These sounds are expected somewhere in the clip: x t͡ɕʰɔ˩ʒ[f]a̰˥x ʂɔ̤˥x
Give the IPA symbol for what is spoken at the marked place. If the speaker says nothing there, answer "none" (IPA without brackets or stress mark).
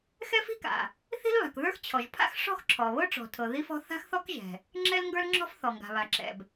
pʰ